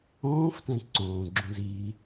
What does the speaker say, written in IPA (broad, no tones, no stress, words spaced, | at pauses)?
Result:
õːftɛ̃ ǀõːɡ͡ǁũz iː